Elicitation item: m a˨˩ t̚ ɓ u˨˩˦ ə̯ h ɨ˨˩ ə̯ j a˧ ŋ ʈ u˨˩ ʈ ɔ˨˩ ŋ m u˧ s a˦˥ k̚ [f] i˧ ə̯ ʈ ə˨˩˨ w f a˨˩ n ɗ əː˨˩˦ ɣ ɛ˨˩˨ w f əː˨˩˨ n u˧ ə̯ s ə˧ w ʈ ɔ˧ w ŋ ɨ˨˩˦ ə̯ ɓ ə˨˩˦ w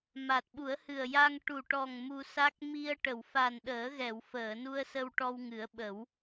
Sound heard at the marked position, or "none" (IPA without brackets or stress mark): m